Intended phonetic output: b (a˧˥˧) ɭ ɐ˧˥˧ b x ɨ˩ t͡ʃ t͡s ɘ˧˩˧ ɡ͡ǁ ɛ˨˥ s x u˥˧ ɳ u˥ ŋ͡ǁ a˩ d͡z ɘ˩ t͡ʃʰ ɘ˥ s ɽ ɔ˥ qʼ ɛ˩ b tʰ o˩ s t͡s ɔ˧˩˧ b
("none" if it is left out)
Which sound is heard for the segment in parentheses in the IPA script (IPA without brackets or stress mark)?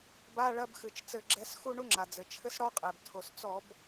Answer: a˧˥˧